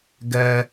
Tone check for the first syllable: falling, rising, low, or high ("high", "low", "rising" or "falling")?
high